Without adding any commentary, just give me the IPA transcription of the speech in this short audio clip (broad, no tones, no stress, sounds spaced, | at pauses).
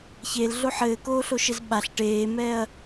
ç eː l ɮ o ħ ɘː k oː ɬ o ʃ ɘ z ɓ a ɬ ʈ eː m ɛː ɐ̯